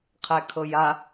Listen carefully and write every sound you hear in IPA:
qʰækʰɤja

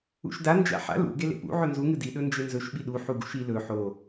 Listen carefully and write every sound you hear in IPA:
ṵʃda nd͡ʒa̰ħa̰ lṵ ɡelḛpṵ ʕɵnzu ŋɨdi ɗɵnd͡ʒenzɵʃ ɓiɗu ħuɡṵʃi lɵ ħo

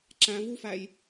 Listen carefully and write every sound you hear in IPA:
ǁæ̃vufæj

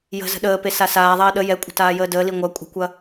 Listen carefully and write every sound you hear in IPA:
jə̤zə̤ ɗəːpe sasaːðˤɐː ɗə jɛkʷʼə̤ taːjəːdəːli ŋʷɐ kʷʼə̤kʷɐ

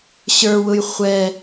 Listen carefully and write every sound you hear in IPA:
ɕə˞wʊj χʷɛ

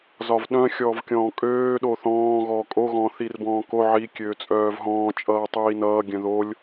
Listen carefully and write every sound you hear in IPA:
zɒvɗœ̃ xʲɔːvkʲɔ̃ːkʼøː ɗoθɔ̃ː ɣɔːkʼo ɣɔ̃ːθirbɔ̃ːko ʕi kʲøːt͡sʼœːvɦɔ̃ː t͡ʃʼʌːtˤiːnʌː ɡʲœ̃ðolʲ

